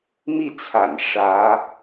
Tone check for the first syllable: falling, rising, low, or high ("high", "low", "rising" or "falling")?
falling